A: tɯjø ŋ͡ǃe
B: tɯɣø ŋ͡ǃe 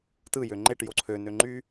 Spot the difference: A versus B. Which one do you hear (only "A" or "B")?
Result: A